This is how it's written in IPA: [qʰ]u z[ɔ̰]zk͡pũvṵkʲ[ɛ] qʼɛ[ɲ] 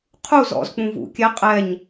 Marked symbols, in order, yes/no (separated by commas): yes, yes, yes, yes